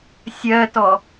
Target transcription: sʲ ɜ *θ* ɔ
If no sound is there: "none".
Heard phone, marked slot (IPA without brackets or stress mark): t